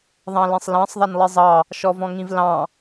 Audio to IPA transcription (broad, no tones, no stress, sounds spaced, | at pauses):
ðˤ ɑ̃ l ẽ sˤ l ɑ̃ sˤ ðˤ a n lˠ i zˤ ɑ | ʃ ɔ v ɔ̃ ŋ ĩ v l ɑ̃